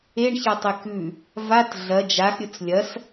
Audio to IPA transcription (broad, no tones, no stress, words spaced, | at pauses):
eɳçɐtˤe kʉ | vat ɮɐ d͡ʒaxɾʲɵt͡s lʲɐs